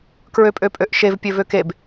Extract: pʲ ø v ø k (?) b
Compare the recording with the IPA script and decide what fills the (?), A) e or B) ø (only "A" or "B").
A